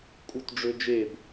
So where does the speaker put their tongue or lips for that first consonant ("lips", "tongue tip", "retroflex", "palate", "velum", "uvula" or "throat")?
velum